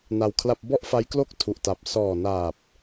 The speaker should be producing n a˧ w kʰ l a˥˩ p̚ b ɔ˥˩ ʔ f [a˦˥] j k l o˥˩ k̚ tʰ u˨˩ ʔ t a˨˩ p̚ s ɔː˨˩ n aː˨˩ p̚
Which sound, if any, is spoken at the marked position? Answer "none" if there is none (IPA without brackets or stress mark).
a˦˥